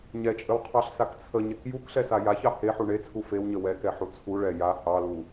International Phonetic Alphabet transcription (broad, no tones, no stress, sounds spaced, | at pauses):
ɲ ɛ t͡ʃʼ ə w qʰ ɑ ɬ s a k t͡sʰ ə ɲ e k j u k ɬ ɛ s a j a ç ɑ h e ħ u ɳ e t͡sʰ u f e w ɲ ə w ɛ k ɛ ħ u t͡sʰ u ɭ ɛ j a h ɑ l u